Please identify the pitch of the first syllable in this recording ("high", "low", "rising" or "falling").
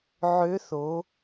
rising